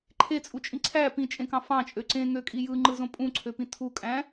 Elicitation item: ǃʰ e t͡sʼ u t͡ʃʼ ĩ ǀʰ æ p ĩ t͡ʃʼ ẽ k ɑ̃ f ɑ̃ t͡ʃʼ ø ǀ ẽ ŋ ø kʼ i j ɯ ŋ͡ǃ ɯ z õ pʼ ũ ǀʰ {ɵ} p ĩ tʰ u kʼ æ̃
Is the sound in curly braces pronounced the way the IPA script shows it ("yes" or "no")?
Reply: no